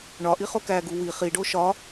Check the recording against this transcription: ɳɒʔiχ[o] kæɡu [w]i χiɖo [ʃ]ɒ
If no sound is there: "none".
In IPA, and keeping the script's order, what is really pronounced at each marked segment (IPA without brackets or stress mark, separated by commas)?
o, w, ʃ